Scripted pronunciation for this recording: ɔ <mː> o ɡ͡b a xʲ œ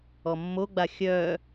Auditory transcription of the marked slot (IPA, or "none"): mː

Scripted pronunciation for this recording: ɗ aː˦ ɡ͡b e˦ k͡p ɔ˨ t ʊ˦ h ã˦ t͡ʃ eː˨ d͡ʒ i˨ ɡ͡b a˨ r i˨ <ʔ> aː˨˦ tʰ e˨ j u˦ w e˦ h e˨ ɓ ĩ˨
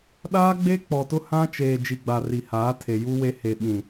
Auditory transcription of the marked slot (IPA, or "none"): h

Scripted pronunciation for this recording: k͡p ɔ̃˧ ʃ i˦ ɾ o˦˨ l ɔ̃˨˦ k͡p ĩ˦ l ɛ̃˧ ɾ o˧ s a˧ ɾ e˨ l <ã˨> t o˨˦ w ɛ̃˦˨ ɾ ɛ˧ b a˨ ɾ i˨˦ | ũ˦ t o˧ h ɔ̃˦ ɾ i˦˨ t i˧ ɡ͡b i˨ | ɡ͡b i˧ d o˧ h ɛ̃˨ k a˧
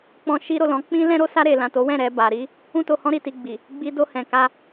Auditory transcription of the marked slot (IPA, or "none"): ã˨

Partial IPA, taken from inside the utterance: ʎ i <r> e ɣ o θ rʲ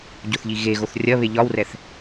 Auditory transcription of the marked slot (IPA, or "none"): ɣ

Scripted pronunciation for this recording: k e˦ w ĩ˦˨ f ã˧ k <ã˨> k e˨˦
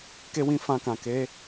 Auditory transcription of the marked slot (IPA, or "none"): ã˨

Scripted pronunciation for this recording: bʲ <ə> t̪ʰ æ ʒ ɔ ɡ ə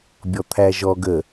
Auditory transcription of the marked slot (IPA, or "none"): ɔ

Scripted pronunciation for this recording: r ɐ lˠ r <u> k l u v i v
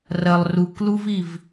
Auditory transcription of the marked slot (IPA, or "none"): u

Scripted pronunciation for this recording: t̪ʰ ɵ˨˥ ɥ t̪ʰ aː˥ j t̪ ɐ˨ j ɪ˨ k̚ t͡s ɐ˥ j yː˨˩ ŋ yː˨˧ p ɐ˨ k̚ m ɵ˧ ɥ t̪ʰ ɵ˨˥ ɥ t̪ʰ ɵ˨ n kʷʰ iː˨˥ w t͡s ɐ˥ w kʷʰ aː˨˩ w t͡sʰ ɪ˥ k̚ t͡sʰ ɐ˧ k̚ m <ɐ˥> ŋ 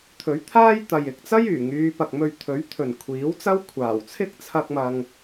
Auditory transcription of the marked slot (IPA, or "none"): ɐ˧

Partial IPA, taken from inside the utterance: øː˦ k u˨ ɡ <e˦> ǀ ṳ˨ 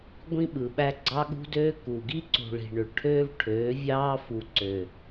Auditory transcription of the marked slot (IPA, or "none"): i˦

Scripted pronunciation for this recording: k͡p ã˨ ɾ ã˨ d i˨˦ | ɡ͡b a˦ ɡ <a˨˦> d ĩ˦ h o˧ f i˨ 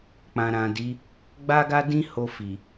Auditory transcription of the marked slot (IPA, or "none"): a˦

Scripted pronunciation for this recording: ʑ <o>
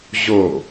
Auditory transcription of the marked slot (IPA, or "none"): o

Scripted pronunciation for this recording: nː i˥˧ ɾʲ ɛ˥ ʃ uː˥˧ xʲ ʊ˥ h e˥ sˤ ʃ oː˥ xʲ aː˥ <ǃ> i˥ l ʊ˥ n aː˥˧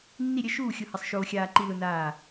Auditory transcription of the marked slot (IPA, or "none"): ǃ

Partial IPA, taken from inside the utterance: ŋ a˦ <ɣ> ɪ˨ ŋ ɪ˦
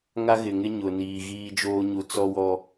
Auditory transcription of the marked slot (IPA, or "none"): ɣ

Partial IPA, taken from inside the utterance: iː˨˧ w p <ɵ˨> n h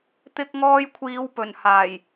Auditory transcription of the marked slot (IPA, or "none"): ɵ˨˩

